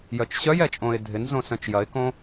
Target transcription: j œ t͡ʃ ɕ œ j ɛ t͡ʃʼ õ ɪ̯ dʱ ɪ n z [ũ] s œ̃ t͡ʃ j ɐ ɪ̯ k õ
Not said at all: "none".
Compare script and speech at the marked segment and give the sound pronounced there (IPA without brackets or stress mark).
õ